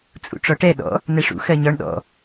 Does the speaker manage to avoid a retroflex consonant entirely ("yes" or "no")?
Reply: no